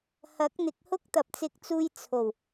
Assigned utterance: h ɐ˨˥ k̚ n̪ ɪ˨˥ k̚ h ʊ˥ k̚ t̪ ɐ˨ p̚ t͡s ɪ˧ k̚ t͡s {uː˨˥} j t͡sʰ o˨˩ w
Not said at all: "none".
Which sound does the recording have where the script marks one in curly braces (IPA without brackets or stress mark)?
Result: uː˧